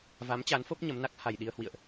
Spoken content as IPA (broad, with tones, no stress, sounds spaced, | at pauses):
v a˨˦ m t͡ɕ a˨˦ n f o˦˥ p̚ ɲ ə˨˦ m n a˦˥ k̚ h a˨˩ j ɗ i˧ ə̯ h w ḭ˧˨ ə̯ ʔ